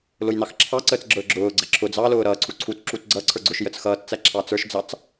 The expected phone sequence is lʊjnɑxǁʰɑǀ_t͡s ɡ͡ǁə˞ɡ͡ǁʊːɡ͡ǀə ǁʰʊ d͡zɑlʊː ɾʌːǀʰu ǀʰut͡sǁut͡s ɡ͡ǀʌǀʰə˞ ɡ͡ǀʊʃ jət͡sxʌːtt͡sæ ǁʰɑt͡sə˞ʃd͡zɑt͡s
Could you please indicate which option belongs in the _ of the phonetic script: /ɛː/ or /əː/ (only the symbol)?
əː